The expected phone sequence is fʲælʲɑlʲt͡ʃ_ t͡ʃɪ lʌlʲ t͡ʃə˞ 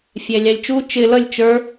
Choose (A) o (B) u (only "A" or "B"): B